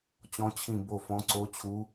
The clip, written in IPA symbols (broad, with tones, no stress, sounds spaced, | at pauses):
t͡ɕ ɔ̃˨˦ t͡ɕʰ ĩ˧˩ b o˧˩ f ɔ̃˨˦ ǀ o˨˦ t͡ɕʰ u˨˦